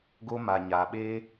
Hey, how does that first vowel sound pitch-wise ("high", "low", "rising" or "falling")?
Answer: high